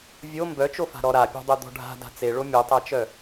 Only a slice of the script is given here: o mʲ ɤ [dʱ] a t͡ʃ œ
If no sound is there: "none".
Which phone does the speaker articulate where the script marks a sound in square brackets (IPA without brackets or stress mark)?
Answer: tˤ